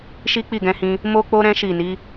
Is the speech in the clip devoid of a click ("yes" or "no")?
yes